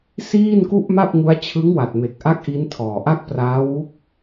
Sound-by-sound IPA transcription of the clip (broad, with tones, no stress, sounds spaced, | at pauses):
s iː˥˩ n k u˥˩ ʔ m a˥˩ p̚ ŋ u˦˥ a̯ t͡ɕʰ ɯ˦˥ ŋ w a˨˩ t̚ m e˨˩ k̚ ʔ a˦˥ k̚ ʔ i˦˥ n tʰ ɔː˨˩ ʔ a˥˩ k̚ p r aː˦˥ w u˦˥ k̚